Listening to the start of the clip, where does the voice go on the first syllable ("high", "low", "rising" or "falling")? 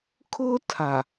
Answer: high